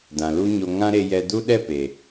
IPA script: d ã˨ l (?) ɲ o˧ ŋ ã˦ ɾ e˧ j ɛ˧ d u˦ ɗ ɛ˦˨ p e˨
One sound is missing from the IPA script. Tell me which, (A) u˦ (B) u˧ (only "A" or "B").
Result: A